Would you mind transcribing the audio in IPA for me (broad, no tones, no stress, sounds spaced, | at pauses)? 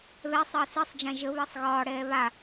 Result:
β ɛ sˤ əː s i sˤ d͡ʒ ã ʒ ə β əː sˤ ɣ ɒː ɽ ɛː β a